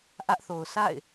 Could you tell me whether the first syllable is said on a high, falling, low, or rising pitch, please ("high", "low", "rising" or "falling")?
high